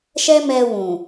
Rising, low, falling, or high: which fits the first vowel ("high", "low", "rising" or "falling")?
high